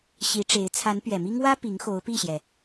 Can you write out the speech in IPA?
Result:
ɕ i˧˥ ʈ͡ʂ e˧˥ ɪ̯ t͡sʰ a˧˥ n p ɥ ɛ˨˩ m i˥ ŋ w ä˥ p i˧˥ ŋ x o˧˥ ʊ̯ p i˥˩ ɕ j ɛ˩

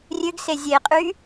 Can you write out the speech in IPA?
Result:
rʲ ø ɡ s e zʲ e qʼ y

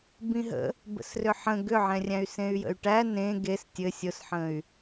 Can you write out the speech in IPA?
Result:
b ĩ ɦ ə̰ | b ə̰ s r ʏ ħ ə̃ ɡ ʏ ʕ ɛ̃ rʲ æ̃ y̯ s ẽ y̯ j ə̰ y̯ ʈ æ n ẽ ɡ e s tʲ ɘ sʲ ʊ s ħ ə̃ y̯

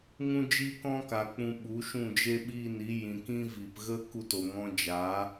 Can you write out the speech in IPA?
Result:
ŋ ũ˦ d͡ʒ iː˦ k ɔ̃˦ k a˨ k͡p ũ˧ ɓ u˨˦ ʃ ũ˦˨ d͡ʒ e˦ ɓ iː˦˨ n i˨˦ j ĩ˨ k ĩ˦ v i˨ p ɣ ə˧ k u˧ t o˨ ŋ ɔ̃˧ d͡ʒ a˨˦

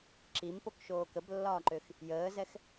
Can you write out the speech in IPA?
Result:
ǁ i m p o k ʃ oː k ə b lː ɒː ǃ ø x | j əː z ɛ x

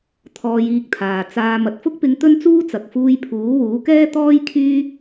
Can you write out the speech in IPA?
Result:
t̪ʰ ɔː˧ j iː˧ k̚ t̪ʰ aː˨ t͡s aː˧ m ɐ˨ t̚ f ʊ˥ k̚ p ɪ˧ ŋ t̪ ɵ˥ n t͡s uː˥ t͡s ɐ˨ k̚ f uː˧ j pʰ uː˨˥ w uː˨˥ k ɛː˥ t̪ ɔː˥ j kʰ yː˥

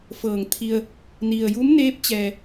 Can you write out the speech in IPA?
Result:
f ɤː˧˩ ŋ t̪ʰ i˧ ə̯ | n i˩ ə̯ j u˧˥ m n eː˧˥ p̚ t͡ɕ ɛː˩

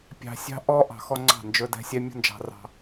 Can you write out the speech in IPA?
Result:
pʲ ɑ̤˨ sʲ ɑ̤˦ ʔ ɔ˦ ʔ ɑ̤˨ x ɔ˦ ŋ͡ǀ ɑ̤˦˨ n d͡ʒ ɵ˦ d ɛ̤˦ sʲ ɛ˦ mʲ ɔ̤˦ n d͡ʒ ɑ̤˨ r ɑ̤˦

